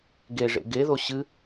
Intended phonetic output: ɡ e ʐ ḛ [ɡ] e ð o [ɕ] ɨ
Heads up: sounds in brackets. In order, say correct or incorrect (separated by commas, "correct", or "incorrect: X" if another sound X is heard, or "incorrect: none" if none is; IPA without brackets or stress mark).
correct, correct